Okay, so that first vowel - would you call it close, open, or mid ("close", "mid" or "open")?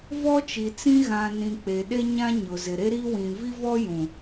mid